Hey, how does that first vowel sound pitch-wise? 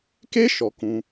high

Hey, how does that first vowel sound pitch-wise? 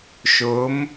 rising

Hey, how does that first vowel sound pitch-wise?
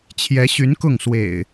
rising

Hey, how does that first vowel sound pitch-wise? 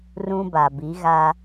high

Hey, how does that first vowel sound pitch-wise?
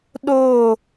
falling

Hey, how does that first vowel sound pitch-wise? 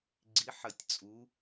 rising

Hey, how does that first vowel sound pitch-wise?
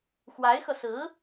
rising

